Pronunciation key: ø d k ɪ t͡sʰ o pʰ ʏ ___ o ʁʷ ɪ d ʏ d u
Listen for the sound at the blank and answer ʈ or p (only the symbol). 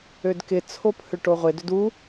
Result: ʈ